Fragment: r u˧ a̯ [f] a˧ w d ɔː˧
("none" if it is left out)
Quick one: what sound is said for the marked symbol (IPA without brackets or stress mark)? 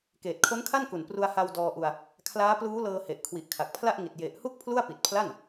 h